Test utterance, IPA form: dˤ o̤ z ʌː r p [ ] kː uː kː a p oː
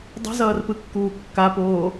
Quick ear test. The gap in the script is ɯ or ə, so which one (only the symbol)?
ɯ